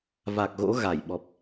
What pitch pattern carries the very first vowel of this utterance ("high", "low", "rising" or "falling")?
low